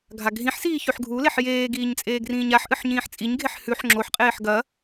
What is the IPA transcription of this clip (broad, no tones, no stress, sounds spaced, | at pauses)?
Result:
ɡʱ a ɡʱ ĩ ħ s iː ç ʉ ħ ɡʱ u l e ħ j eː ɡ iː ɲ t͡sʼ eː ɡ r ĩː ɲ a ħ ʔ ɨ ħ ɲ ĩː ħ t͡sʼ i ɲ ɡʱ e ħ h ʉ ħ ŋ͡ǁ o ħ qʼ eː ħ ɡ ɐ